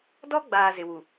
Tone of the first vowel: high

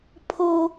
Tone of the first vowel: high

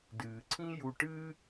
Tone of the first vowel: low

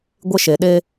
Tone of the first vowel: high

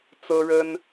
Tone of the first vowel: high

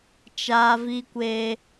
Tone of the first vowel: high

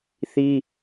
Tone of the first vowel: high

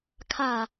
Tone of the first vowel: falling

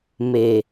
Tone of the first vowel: low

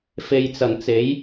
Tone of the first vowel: low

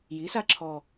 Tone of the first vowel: rising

